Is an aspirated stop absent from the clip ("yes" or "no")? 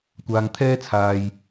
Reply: no